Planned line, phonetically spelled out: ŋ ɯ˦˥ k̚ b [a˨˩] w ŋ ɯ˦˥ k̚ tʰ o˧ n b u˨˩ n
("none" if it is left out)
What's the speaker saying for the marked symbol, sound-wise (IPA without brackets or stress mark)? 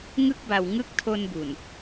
a˨˩